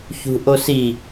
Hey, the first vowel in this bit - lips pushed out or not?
yes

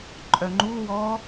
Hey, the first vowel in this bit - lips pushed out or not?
yes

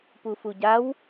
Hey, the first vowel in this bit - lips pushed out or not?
yes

